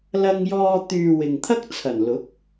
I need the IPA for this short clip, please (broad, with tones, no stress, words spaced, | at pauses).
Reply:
lɐ˧ŋjɔː˧ t̪yː˨ wɪ˨ŋt̪ʰɐ˥k̚t͡sʰɐ˨˩n lʊ˨˥k̚